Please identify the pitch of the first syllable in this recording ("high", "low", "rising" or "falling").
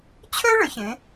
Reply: high